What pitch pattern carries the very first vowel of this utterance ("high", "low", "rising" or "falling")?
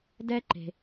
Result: high